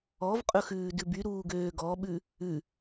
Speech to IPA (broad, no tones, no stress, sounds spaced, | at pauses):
ɔ v qʼ ɵ x ʉː d ʉ b y ɾ uː ɡ øː ɡ ɔ ɓ ʉ | ʉ